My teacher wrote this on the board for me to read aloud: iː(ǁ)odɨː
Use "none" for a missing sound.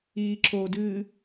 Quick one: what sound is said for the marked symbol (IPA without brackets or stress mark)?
ǁ